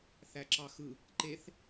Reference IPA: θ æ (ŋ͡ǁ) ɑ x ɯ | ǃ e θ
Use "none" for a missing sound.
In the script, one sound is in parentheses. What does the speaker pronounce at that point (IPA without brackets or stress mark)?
ǁ